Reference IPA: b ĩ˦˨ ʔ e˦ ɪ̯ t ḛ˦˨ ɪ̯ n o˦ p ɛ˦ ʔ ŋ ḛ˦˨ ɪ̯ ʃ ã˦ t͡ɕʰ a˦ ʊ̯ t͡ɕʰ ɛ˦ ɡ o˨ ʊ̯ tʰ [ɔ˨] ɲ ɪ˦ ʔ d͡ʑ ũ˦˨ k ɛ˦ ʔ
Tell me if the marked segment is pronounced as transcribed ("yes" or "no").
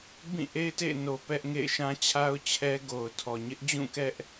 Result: yes